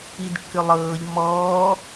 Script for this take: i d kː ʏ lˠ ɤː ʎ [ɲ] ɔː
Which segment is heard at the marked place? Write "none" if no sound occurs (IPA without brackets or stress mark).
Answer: m